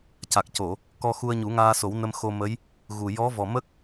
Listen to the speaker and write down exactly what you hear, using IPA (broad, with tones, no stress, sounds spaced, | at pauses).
c a˨˩ k̚ c o˨˩˨ | k ɔ˧ x u˧ ə̯ ɲ u˨˩˦ ŋ aː˧ s o˨˩˦ w n ə˧ m x o˧ m ə˧˥ j | ɣ u˨˩ j ɔ˧˥ v ɔ˨˩ m ə˦˥ k̚